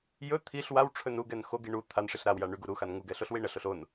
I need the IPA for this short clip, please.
jɵ t̪ʰiɬ wawʈ͡ʂʰɵn uɡɛn xoɡi ɳu t̪ʰan ʂiɬɾawja ɳyɡu ɾuxan ŋuɡɛ ɬoɬwiɳəɬoɬ on

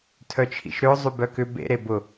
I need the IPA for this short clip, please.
tʰœt͡ʃʰḭʃɾʏʊ̯ zˤybœkʏ bḛ ɾebʊ

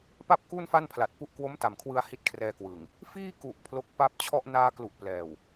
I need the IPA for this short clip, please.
pa˥˩p̚ku˥˩n fa˥˩npʰla˨˩t̚pu˦˥ʔ kwo˦˥mta˨˩mkʰwɯ˧a̯ hi˦˥t̚kʰrɛː˧kwɯ˨˩ŋ | fiː˥˩ku˨˩ʔ pʰlo˦˥k̚pa˥˩p̚ t͡ɕʰɔ˥˩ʔ naː˧klu˨˩ʔ plɛː˨˩w

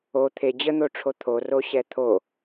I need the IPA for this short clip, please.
o t̪ʰe d͡ʑən̪oʈ͡ʂʰo t̪ʰoroɕɛ t̪ʰo

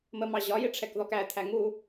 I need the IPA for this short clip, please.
məmɑ ʑɒjɪʈ͡ʂʰɛkðɔk æt̪ʰæ ŋu

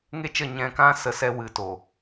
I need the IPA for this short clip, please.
ŋe˦t͡ʃə˦˨ ɲɛ̃˧kã˦ sə˦sɛ˦ wɨ˨to˨

